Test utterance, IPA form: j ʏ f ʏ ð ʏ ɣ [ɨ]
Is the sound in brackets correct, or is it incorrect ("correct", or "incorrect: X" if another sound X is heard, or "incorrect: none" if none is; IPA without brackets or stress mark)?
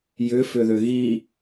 incorrect: i